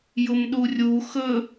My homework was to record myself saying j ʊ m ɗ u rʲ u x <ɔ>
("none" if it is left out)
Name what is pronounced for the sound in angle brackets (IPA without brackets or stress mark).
ɵ